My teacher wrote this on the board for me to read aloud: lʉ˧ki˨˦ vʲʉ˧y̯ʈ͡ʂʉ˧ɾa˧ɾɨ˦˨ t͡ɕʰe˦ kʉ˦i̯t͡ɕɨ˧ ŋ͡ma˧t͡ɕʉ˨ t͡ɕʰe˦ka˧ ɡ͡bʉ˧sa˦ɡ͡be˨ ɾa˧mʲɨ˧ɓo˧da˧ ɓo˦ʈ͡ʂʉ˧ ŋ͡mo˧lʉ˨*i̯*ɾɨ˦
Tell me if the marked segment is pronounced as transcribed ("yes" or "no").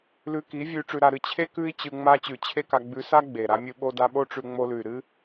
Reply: no